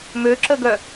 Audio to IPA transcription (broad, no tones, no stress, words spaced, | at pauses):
møǁəɡœ